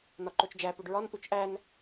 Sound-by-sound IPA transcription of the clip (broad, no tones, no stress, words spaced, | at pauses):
nɒǃot͡ʃd͡ʒæ puɖɹɒn ʔut͡ʃʔæn